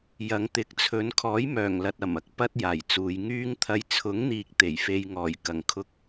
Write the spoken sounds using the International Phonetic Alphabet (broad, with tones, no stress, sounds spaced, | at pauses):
j ɐ˨˧ ŋ t̪ ɪ˨˥ k̚ t͡sʰ ɵ˨˧ n kʰ ɔː˨˥ j m œː˨˩ ŋ l ɐ˨ t̚ ɐ˨˩ m ɐ˨˥ k̚ p ɐ˥ t̚ j aː˨˩ j t͡s uː˨˧ j ŋ yː˧ ŋ t̪ʰ ɐ˨˧ j t͡sʰ ʊ˨˥ ŋ n̪ iː˧ k̚ t̪ e˨˩ j f e˧ j ŋ ɔː˨˩ j k ɐ˨˩ ŋ kʰ ʊ˧ k̚